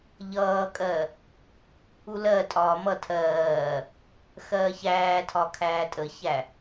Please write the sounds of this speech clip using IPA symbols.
ʎ ʌː kʼ ɜ | u l ɜ tʼ ɒː m ʌ tʰ ɜː | x ɜː ç æː tʰ ɒ kʰ æː tʼ ə ç æ

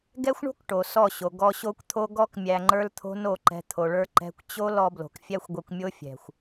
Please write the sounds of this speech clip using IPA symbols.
ɡ ɛ˦ xʷ ɳ o̤˦ k ʈ o˨ s ɔ˦˨ ɕ o˨ ɡ ɔ˧ ɕ o˦ kʷ t̪ʰ o˦ ɡ ɔ˦ k mʲ æ˧ ŋ͡ǃ ə˞˦ l t̪ʰ o̤˦ n o˦˨ ǃ ɛ̤˧ t̪ʰ o˨ ɭ ə˞˦ ǃ ɛ̤˧ kʷ t͡ɕ o˦ l ɔ˧ b l o̤˨ k fʲ æ˦ xʷ ɡʷ ɛ˧ kʷ mʲ o˦ fʲ ɛ̤˨ xʷ

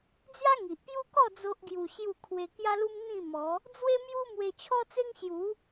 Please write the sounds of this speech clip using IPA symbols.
d͡z j a˦ ŋ i˨ ʔ p j u˦ k ɔ˥˧ d͡z o˦ ʔ ɡ j u˧ ɕ j u˥˧ kʰ w e˧ k j a˦ l u˦ m n̪ ĩ˥˧ m ɔ˨˦ | d͡z w e˦ m j u˦ m w e˧ t͡ɕʰ ɔ˦ t͡s e˦ ŋ ɕ j u˨˦

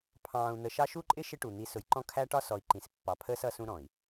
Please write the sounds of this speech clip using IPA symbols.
pʰ ɑ̃ː˨ u̯ n̪ ə˨ ʃ ɑ˦ ʃ u˦ ǃʼ ɪ˦ ʃ ɪ˦ ʈ u˨ n̪ i˨˦ s ʊ˨ j ǃ ɔ̃˦ kʰ æ˦ ʈ ɒ˦ s ɔ˨ i̯ ǃ ĩ˨ s pː ɑ˨ pʰ əː˦ s ʌ˦ s ũ˦ ɾ ɔ̃˨ i̯

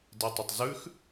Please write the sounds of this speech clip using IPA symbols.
d e tˤ ə tˤ z ʉ x

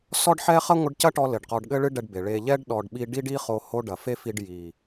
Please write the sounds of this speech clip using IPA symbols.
s ɔ˦ ɖ ħ ɛ˦ χ ɐ˦ ŋʷ ɨ˧ ɖ c ɐ˦ ʈ ɔ˦ l ɘ˨ ɖ q ɔ˨ ɖ ɠ ɘ˧ ɭ ɨ˧ ɖ ɛ˧ ɖ b e˨ ɭ e˧ ʎ ɛ˦ ɖ ɗ ɔ˨ ɖ ɓ i˧ ɖ i˦ ɖ i˦ χ o˧ h o˦ ɖ ɐ˨ f e˦ f i˧ ɖ j i˨

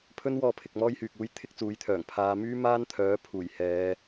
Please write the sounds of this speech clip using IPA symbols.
pʰ ɵ˥ n w ɔː˧ pʰ ɪ˨ k̚ m ɔː˥ j h yː˨ k̚ uː˥ j t̪ʰ ɪ˥ k̚ t͡s uː˨˥ j t̪ʰ œː˨˩ ŋ pʰ aː˨˧ m yː˥ m aː˥ n t̪ʰ œː˨˥ pʰ uː˨˩ j h ɛː˨˧

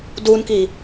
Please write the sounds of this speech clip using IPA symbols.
d u n k i

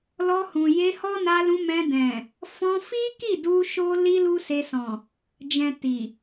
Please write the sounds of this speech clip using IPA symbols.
l ɔ˧ h ũ˨ j e˧ h ɔ˦ n a˧ l ũ˧ m ɛ̃˧ d ɛ̃˨ | f ɔ̃˧ f i˦ k i˦˨ d u˧ ʃ o˦ l i˦ l u˦ s e˧ s ɔ̃˨ | d͡ʒ ɛ̃˨ t i˨

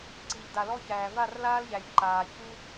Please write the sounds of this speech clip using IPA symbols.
ǀ i˨ ʎ d a˨ l ɔ˦ ç æː˨ v a˦˨ r l aː˦ l ʎ æ˨ j ǃ aː˨ ç uː˦

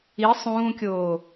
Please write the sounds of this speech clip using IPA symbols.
i sˤ ũː kʲ oː

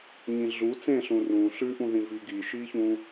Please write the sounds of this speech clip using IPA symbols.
ɲ ĩ ɮ u t͡s ẽ ɬ ũ r ũ ɬ ʉ ʔ ũ ð ĩ v i ɡ i ʃ i ç ũ

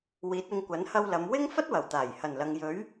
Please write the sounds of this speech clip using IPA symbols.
w iː˨˥ t̚ ɪ˧ ŋ kʷ ɐ˨˥ n h ɐ˧ w l ɐ˨˧ m w ɪ˥ ŋ f ɐ˥ t̚ w ɐ˨˩ w t̪ aː˨˩ j h ɐ˨˩ n l ɐ˨ ŋ j ɵ˨˥ ɥ

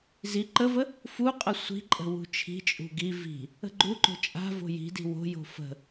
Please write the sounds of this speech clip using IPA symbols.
z i ǃ ə v ə | f u qʼ ə sʷ i̤ ǃʼ ə̤ w ṳ t͡ʃʰ i̤ t͡ʃʼ ṳ ɡ i v i̤ | ə̤ ɡ͡ǃ u ǃ o̤ t͡ʃʼ a̤ v o̤ j i̤ d i̤ w o̤ j o̤ f ə̤

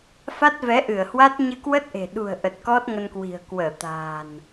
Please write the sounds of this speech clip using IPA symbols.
f a˦˥ t̚ v ɛ˨˦ ʔ ɨ˧˩ ə̯ h w a˦˥ t̚ ɲ ɨ˧ k w ə˦˥ t̚ ʔ e̤˨˩ ɗ ṳ˨˩ ə̯ ʔ ə˨˩ t̚ k ɔ˦˥ t̚ ŋ ə˧ n k w i̤˨˩ ə̯ k w əː˧˩ t̪ a̤ː˨˩ n

